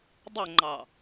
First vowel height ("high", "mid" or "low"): mid